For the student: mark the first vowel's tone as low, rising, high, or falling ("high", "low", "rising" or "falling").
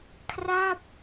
falling